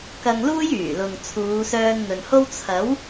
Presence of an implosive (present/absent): absent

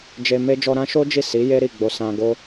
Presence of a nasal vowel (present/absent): present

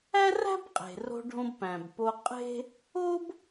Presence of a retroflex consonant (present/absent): present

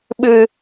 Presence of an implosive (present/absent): present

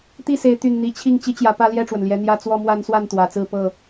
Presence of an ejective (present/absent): absent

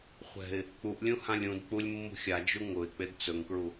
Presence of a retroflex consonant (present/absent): absent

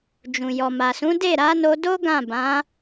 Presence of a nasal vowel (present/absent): present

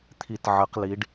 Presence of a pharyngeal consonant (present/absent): present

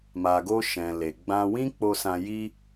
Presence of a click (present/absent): absent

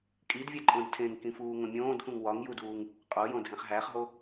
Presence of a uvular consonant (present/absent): present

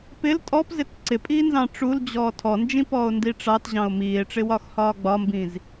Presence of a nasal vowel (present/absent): present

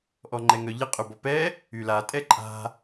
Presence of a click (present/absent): present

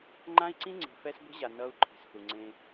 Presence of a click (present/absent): present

